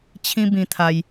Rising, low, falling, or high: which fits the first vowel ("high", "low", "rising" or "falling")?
high